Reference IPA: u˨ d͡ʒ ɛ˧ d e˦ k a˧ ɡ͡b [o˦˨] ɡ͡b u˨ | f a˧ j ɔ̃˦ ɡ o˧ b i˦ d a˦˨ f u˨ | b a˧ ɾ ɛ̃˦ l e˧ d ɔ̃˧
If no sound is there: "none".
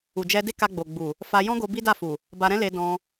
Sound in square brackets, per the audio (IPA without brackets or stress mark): o˨